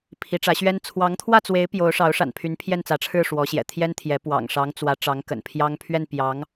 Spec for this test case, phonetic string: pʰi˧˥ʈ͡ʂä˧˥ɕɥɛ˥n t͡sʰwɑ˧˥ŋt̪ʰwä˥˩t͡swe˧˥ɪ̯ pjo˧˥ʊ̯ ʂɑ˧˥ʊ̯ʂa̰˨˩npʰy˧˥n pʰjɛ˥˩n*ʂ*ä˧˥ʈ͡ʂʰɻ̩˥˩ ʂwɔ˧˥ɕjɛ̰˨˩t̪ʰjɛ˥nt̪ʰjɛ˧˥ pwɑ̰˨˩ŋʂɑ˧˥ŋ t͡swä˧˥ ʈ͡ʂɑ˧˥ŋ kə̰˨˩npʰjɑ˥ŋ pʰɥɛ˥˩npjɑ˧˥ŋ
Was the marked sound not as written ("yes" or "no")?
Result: yes